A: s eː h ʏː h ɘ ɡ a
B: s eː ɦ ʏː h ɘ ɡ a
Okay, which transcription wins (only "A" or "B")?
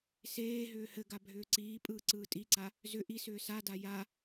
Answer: B